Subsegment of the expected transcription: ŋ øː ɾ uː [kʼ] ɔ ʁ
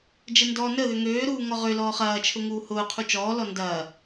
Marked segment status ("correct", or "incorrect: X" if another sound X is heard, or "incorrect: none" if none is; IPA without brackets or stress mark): incorrect: ŋ